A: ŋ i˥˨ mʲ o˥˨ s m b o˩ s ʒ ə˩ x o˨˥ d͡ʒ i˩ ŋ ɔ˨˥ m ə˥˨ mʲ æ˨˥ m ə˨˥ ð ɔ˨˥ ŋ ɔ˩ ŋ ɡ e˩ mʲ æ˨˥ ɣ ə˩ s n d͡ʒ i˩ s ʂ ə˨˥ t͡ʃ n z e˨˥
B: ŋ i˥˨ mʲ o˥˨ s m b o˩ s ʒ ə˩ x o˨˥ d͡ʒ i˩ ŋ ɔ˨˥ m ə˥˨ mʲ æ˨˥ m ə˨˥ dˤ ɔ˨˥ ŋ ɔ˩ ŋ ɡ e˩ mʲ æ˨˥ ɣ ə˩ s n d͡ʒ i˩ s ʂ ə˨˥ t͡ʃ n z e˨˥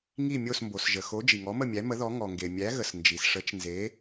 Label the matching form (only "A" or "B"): A